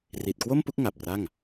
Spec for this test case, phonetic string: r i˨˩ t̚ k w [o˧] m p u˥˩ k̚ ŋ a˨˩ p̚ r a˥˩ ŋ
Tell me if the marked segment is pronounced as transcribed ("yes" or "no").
no